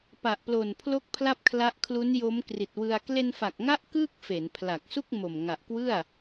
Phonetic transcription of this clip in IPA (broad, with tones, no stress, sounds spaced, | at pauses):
p a˨˩ ʔ p l o˨˩ n pʰ l o˥˩ k̚ pʰ l a˥˩ p̚ kʰ l a˦˥ ʔ kʰ l u˦˥ n j o˦˥ m k r i˨˩ t̚ w ɯ˧ a̯ k l e˧ n f a˨˩ k̚ ŋ a˦˥ ʔ k ɯː˥˩ k̚ f e˩˦ n pʰ l a˨˩ k̚ s u˥˩ k̚ m o˨˩ m ŋ a˨˩ ʔ k w ɯ˥˩ a̯